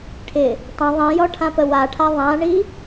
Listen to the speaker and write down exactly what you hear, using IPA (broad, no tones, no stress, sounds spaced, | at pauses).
ʈʰ ɪ | tˤ ə̃ ðˤ ĩ j ɔ ʈʰ ã p ə w a ʈʰ a ðˤ ã ɳ i